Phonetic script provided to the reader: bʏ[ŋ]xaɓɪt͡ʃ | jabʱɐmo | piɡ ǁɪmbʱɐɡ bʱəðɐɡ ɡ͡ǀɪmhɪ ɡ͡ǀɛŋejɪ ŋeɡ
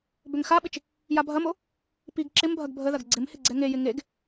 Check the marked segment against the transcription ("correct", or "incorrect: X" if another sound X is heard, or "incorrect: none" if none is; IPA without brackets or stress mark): correct